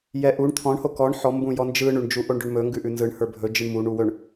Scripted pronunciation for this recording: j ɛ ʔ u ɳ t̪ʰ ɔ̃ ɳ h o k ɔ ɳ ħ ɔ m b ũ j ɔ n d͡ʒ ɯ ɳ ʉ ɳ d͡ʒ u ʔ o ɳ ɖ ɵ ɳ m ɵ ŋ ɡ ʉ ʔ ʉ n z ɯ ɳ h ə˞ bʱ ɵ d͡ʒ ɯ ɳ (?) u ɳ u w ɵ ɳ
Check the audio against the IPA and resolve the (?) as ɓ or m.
m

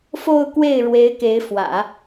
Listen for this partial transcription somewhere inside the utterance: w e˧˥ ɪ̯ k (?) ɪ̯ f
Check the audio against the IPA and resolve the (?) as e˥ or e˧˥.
e˧˥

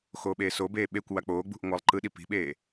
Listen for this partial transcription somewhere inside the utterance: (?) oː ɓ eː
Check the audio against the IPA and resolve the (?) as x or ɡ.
x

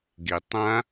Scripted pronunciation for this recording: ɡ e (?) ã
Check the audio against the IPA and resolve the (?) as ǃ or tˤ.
tˤ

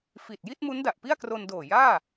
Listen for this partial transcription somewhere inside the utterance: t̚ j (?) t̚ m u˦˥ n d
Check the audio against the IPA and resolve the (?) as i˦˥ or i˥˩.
i˥˩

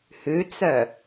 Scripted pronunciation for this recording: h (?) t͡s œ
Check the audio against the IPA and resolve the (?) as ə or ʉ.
ʉ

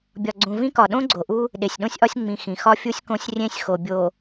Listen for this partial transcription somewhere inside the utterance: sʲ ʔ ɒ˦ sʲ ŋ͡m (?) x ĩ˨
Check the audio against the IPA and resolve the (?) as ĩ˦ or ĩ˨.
ĩ˨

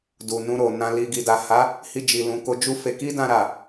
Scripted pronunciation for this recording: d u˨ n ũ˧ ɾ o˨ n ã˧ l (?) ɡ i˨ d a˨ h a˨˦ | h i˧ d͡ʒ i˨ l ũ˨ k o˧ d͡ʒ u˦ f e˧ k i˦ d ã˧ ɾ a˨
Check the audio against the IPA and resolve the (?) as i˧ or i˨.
i˧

